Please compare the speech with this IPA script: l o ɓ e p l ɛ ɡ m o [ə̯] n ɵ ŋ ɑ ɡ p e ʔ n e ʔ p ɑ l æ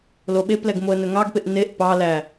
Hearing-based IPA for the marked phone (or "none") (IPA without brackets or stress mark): ə̯